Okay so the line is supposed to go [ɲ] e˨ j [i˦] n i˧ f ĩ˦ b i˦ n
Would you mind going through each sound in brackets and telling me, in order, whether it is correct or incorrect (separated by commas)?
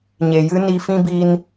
correct, incorrect